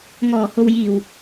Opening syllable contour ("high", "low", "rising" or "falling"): low